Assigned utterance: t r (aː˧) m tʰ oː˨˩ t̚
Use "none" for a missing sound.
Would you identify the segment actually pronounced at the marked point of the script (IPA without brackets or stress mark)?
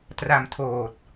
a˧